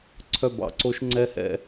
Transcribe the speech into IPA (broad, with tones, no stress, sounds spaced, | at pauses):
ǀʰ œ˦˨ b ɑ̰˨ ǀ o˦ ʃ ŋ͡ǀ ɛ˦ h ɛ̰˧